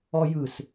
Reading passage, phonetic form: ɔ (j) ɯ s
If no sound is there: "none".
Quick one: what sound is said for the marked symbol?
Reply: j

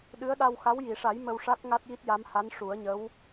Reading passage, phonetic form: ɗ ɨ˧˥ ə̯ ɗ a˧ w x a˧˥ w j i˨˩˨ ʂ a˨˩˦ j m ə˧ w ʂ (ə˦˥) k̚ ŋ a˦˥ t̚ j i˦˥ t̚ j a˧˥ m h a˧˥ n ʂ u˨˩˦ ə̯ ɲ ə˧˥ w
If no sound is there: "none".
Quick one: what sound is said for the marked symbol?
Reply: a˦˥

